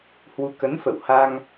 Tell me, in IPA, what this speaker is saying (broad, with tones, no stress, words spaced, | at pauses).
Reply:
hwu˨˦ kə˨˦nfə̰˧˨wha˧ŋ